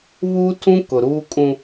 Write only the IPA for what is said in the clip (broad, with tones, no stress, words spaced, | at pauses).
βuː˦tʰũ˦kʊ˨ɾuː˦ kʼũ˦